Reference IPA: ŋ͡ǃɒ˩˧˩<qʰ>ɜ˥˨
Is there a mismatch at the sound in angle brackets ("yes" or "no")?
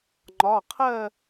no